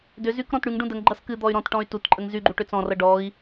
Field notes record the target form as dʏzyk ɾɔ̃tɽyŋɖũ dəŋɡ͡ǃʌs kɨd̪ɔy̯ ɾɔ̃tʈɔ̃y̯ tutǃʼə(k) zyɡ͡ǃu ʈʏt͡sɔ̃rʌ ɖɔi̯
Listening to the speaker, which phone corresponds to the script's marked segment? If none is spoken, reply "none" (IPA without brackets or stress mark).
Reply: ŋ